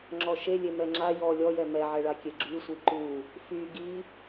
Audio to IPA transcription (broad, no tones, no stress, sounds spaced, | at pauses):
ŋ͡ǁ ɔ ʃ e lʲ e m ɛ ŋ͡ǁ a j ɔ lʲ ɔ j ɛ m ɛ ʕ ɛ ɭ a kʲ e ɡ͡ǁ y sʷ i ǃ u | f y ɡ i